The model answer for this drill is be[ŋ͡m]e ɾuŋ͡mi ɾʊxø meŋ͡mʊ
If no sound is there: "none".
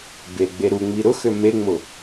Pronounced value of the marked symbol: ɡ͡b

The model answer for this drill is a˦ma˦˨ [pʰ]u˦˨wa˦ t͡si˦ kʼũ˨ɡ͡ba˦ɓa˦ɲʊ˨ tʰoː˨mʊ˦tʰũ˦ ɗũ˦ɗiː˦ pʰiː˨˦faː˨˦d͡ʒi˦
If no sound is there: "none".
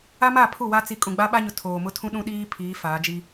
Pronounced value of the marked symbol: pʰ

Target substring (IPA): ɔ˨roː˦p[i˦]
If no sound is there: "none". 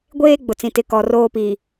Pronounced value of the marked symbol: i˨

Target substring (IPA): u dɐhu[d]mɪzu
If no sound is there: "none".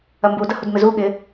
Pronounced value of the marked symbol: d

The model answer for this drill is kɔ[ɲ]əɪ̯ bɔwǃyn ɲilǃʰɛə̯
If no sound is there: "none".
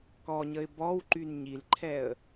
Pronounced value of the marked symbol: ɲ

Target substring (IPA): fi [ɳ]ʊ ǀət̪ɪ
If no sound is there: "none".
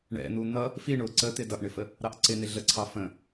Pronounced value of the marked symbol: ɳ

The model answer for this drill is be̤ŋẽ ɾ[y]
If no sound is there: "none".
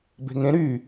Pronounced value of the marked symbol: y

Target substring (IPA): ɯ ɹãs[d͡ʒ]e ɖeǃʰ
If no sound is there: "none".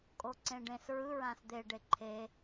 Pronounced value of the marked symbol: d̪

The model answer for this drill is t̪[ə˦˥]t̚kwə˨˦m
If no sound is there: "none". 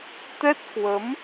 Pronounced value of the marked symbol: ɛ˦˥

